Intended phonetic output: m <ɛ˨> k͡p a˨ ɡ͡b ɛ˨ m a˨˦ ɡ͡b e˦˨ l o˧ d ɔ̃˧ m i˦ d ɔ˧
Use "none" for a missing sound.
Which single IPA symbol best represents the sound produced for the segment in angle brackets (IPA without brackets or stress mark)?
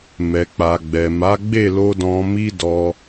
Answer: ɛ˨